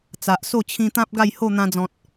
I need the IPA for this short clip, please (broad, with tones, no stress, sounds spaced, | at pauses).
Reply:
t͡s a˨ ʔ s o˥˧ t͡ɕʰ ĩ˧ t̪ ã˦ p̚ ɡ a˥˧ j h o˥˧ n̪ ã˧ d͡z ɔ̃˨ t̚